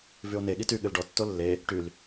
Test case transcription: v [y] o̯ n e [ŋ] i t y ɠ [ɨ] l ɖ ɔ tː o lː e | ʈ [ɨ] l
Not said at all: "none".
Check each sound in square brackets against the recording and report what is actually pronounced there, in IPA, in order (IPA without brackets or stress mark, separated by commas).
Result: y, ɠ, ɨ, y